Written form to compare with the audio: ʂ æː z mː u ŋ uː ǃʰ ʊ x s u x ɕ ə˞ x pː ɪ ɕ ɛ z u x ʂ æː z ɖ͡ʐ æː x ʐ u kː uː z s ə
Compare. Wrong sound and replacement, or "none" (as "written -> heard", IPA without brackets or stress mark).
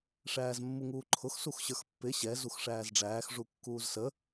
none